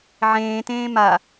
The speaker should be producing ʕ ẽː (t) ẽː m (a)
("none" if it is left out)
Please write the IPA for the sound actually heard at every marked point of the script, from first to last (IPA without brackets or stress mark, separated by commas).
t, a